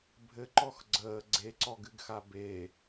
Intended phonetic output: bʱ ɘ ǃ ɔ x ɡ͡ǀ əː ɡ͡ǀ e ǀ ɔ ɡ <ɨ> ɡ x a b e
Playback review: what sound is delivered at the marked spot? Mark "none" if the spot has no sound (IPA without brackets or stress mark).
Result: ɨ